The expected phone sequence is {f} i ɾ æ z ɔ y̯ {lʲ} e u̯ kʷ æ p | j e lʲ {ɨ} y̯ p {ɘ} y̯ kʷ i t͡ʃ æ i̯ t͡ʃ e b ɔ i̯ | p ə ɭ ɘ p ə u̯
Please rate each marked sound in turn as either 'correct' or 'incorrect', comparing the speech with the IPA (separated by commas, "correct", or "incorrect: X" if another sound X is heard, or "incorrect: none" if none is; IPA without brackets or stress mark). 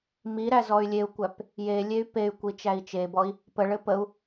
incorrect: m, correct, incorrect: e, incorrect: e